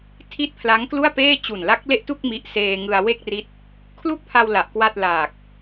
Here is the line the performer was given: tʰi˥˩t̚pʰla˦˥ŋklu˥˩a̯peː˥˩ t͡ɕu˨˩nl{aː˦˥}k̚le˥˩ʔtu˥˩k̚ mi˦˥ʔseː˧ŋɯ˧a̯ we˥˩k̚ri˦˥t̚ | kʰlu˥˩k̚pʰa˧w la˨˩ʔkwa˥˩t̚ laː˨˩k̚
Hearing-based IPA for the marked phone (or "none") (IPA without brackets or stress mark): a˦˥